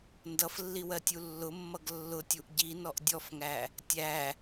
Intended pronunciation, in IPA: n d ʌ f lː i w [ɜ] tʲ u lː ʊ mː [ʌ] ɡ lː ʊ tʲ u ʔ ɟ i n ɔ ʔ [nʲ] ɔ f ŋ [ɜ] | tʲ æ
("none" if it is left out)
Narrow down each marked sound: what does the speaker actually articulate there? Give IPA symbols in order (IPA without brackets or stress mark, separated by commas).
ɜ, ʌ, dʲ, æ